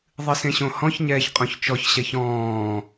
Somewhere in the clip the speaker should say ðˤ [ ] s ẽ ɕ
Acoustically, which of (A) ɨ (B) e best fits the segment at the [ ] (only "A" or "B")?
A